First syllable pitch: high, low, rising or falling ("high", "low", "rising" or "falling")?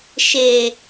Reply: low